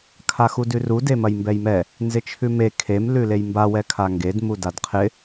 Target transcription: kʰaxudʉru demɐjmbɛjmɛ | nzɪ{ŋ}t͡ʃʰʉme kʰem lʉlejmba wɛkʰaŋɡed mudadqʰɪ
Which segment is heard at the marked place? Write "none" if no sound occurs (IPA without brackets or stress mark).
none